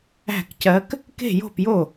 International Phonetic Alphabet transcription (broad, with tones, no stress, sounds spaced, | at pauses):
æ̤˥˩ k c ɜ˧˥ k | k e̤˥˩ j o̤˥˩ p j o˥˩